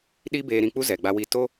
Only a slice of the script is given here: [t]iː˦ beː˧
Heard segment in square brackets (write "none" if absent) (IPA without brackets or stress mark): ɗ